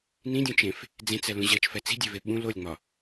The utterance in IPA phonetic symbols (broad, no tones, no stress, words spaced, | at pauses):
nĩdʲũt͡ʃẽf | d͡zẽt͡sɛlũ ʑɜt͡ʃfɛ t͡si̤dʲeve ɓũ lolʲŋ͡mɒ